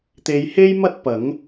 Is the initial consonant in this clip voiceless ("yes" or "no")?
yes